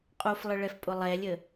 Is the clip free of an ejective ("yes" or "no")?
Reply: no